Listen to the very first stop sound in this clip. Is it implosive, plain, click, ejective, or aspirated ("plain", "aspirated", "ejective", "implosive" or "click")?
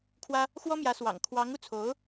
aspirated